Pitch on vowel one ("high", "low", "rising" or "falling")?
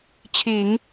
low